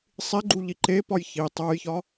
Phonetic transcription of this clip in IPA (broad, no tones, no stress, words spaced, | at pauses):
sˤiɡ͡ǃuʎi ǃepɒj çi tˤojçɒ